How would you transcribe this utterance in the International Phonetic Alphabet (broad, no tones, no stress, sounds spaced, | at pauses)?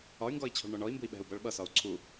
ɒ y̯ ŋ ɡ ɔ i̯ t͡ɕʰ ɔ̤ ɭ ɳ ɔ ɳ ɔ i̯ m b ṳ i̯ ɓ ɛ̤ u̯ b ʌ ɭ ɓ ʌ s ɒ u̯ ǀʰ u